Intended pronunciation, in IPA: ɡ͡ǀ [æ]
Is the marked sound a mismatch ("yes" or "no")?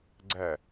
no